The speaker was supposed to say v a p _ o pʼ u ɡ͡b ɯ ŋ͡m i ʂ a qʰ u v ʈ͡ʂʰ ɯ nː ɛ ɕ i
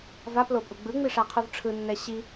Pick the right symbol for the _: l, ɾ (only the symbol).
l